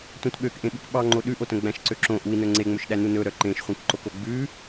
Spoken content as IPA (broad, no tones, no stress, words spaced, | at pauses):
tʷœ̃tɓøk ʔẽɓukɓɑŋ͡ǃo ɗʉʔotœ̃ ɡ͡bæ̃ʃǀøǁõ ʔui̯nɵ ŋ͡ǀeŋ͡mɵʃɗænu nɵɾœ ǃẽʃχʷẽkǃoko ɡ͡bʉ